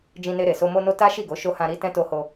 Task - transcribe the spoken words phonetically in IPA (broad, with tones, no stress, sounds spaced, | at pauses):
d͡ʒ ĩ˧ n e˧ ɾ e˨ s o˧ m o˧ n o˧ t a˦ ʃ i˦˨ ɡ o˨˦ ʃ o˧ h ã˧ ɾ i˧ t ɛ̃˧ t o˧ h o˧